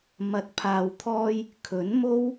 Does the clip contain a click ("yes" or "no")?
no